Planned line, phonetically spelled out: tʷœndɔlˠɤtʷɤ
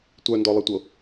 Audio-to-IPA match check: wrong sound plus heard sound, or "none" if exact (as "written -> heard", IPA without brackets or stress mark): none